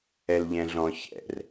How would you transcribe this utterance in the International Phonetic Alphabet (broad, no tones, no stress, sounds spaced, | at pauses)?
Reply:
ɛ l ʎ ɛ̃ ɮ ɔ̃ ç ɛ̰ r